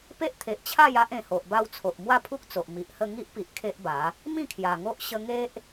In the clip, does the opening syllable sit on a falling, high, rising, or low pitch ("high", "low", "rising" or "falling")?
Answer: high